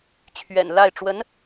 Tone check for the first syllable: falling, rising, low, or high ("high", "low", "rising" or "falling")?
low